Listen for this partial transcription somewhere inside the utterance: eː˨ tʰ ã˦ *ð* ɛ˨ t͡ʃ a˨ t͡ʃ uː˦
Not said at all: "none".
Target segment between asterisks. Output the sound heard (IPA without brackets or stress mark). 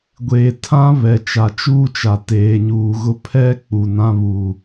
β